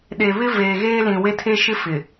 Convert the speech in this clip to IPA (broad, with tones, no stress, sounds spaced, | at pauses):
ɗ e˨ β ɪ˦ v eː˨ ɣ eː˦ l ĩ˨ w e˦ tʰ e˦ ʃ ɪ˦ f ɪ˨